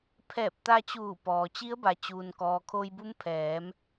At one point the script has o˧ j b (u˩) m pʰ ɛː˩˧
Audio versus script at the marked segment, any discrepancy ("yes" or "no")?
yes